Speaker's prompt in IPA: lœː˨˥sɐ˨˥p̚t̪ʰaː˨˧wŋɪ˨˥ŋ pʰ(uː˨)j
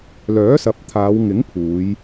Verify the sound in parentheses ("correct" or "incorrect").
incorrect